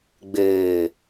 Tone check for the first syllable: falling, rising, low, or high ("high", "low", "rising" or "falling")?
low